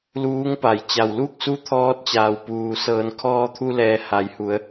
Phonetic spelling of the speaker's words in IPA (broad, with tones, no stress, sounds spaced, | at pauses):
l uː˧˥ ŋ p a˩˧ j t͡ɕ a˩ w l u˥˨ k̚ s u˧˥ t̪ʰ ɔː˧˥ t̚ t͡ɕ aː˩ w p uː˩ s ɤː˩˧ n kʰ ɔː˧ t̪ʰ u˧ l ɛː˩ h a˩˧ j h u˩˧ ə̯